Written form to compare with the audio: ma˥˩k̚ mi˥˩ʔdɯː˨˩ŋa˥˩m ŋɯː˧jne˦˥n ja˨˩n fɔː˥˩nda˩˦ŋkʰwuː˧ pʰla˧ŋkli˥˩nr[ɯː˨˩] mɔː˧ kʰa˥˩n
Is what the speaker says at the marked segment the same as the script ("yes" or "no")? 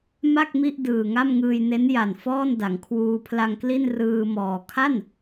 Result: no